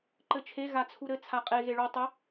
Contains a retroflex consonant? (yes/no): yes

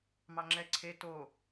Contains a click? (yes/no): yes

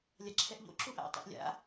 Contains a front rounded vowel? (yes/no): no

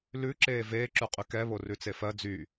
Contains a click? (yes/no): yes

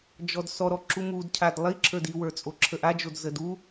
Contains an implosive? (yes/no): no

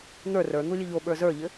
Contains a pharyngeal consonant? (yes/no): no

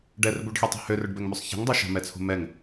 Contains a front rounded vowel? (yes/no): yes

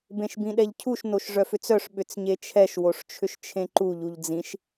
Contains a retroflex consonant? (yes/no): yes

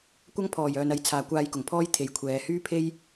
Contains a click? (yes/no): no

